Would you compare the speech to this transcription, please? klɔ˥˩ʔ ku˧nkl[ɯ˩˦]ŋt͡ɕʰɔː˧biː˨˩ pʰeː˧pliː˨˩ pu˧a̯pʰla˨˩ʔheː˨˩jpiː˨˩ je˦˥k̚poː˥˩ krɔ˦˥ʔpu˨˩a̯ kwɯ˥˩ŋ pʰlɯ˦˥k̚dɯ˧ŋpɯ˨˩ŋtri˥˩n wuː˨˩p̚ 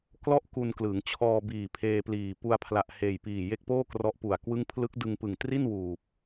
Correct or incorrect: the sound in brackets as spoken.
correct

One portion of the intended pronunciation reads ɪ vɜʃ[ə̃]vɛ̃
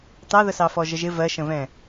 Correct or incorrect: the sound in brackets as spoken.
correct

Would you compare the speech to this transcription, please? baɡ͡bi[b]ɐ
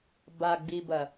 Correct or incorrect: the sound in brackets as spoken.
correct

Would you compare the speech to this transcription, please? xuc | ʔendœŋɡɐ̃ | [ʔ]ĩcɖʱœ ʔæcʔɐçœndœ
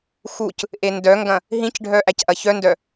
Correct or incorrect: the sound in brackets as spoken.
incorrect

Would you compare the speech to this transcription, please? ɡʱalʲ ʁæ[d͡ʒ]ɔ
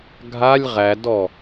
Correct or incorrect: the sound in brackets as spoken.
incorrect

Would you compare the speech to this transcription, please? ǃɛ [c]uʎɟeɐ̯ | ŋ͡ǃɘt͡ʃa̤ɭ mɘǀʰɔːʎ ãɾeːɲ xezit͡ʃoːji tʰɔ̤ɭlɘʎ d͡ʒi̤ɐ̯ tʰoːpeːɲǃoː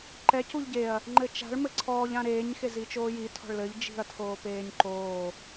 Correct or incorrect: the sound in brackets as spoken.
correct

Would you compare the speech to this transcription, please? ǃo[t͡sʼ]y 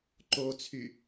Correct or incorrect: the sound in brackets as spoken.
incorrect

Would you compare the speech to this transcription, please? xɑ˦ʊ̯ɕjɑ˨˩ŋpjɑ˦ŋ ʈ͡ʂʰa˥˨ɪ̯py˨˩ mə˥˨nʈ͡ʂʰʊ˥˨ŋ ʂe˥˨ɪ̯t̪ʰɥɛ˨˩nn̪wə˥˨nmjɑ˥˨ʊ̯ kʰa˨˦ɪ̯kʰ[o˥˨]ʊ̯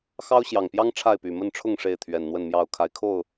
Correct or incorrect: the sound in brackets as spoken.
correct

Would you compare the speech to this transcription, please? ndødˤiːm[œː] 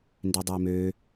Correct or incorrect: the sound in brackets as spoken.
incorrect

